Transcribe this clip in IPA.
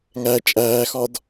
ŋ æ t͡ʃʼ æː x ɒ d

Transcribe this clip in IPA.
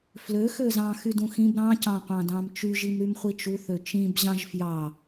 f l ø x ø z ɑ̃ x y d ũ x ĩ b ɾ ɑ̃ c ɑ̃ qʷ ɑ̃ d ɑ̃ m t͡ʃ y ʒ i m ɾ y m χʷ i t͡ʃ u θ ø t͡ʃ ĩ b ʑ ɑ̃ ʒ f j ɑ

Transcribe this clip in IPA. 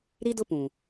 ɾ i˦ d ʊ˦ p ũ˨

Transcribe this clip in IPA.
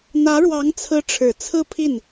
n̪ ä˧˥ ɻ w ɑ˧˥ ŋ t͡sʰ ɹ̩˧˥ ʈ͡ʂʰ ɻ̩˨˩ t͡sʰ ɹ̩˥˧ pʰ i˥˩ n

